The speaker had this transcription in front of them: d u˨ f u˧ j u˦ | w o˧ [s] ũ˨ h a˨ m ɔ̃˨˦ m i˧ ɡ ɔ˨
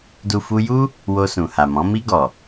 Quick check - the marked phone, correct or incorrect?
correct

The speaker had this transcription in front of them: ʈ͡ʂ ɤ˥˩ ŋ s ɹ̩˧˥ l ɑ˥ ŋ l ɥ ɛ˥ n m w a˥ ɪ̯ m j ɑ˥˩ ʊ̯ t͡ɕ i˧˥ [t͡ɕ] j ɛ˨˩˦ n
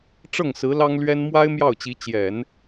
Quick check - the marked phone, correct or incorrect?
correct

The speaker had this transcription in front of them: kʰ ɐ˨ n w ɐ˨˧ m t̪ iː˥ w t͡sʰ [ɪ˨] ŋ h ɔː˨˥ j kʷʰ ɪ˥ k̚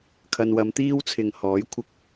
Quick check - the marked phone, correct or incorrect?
correct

